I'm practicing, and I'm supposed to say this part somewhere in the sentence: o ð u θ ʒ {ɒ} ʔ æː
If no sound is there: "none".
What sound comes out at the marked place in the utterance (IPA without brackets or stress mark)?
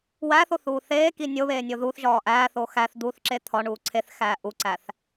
ɒː